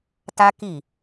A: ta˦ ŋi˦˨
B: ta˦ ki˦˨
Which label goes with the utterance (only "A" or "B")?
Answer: B